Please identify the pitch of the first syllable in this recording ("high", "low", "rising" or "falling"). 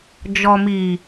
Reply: low